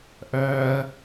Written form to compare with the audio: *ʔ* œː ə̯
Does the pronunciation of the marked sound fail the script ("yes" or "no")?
no